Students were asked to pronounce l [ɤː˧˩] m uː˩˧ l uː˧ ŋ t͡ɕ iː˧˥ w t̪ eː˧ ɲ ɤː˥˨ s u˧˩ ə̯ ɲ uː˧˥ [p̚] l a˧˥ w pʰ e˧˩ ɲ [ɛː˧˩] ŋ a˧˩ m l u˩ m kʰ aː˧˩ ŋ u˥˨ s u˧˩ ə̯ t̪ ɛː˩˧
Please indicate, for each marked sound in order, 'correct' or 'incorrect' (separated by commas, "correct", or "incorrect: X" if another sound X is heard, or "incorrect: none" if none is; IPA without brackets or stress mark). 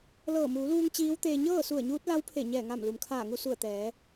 correct, incorrect: t̚, correct